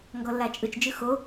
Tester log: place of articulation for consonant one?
velar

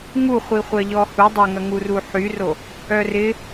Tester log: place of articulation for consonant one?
velar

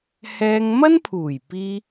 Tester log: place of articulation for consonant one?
glottal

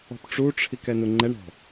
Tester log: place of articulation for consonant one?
labial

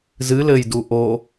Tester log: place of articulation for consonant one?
alveolar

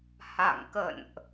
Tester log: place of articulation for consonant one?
glottal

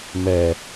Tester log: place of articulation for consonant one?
labial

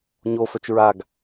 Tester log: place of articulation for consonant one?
palatal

